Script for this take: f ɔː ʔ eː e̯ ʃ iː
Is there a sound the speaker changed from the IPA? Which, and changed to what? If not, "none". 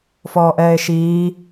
eː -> ɛː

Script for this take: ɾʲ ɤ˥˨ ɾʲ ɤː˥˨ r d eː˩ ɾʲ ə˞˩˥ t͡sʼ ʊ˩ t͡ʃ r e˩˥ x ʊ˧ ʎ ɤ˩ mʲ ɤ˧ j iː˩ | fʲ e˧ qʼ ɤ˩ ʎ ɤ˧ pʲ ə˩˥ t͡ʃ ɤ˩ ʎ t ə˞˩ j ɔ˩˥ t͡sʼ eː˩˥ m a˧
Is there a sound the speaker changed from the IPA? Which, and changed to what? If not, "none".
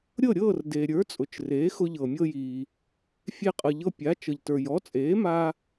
ə˩˥ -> a˩˥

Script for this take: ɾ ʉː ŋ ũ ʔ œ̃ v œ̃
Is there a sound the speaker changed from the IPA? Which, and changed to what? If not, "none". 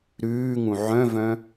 ʔ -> ʕ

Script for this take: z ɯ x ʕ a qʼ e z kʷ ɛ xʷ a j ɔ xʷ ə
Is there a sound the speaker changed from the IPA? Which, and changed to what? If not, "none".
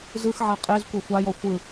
ə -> ɯ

